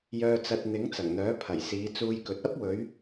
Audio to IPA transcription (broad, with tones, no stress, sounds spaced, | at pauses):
j œː˧ t͡s ɐ˧ t̚ n̪ ɪ˨˥ ŋ t͡s ɐ˨˩ ŋ n̪ œː˨˥ pʰ ɐ˨˩ j s iː˨˧ t͡s uː˧ j k ɵ˨ t̚ ɐ˥ p̚ w ɵ˨˧ ɥ